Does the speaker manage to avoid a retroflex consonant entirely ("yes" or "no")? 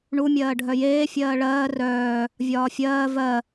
no